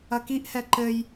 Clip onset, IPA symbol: ɐ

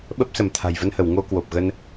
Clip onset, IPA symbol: ɓ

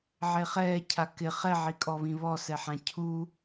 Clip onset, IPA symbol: ʕ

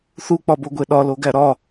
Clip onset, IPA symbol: θ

